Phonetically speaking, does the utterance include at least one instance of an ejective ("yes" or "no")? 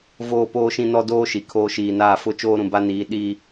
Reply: no